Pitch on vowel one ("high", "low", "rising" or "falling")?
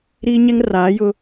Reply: high